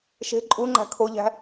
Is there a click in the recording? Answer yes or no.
yes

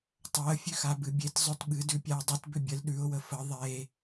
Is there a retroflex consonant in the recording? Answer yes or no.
no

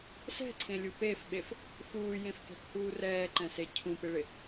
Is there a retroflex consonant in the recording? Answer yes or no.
yes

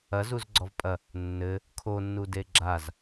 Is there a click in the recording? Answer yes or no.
yes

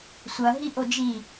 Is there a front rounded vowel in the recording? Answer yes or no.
no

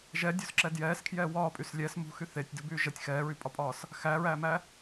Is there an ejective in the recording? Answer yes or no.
yes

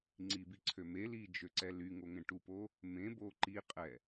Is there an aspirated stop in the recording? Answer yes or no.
yes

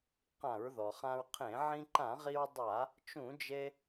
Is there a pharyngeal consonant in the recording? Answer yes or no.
yes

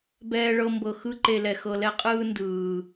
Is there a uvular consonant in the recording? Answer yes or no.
yes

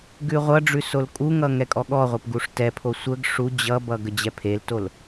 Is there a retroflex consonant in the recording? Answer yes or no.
yes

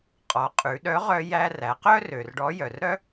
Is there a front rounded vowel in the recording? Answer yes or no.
yes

